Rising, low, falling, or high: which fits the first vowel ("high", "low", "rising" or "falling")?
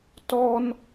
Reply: high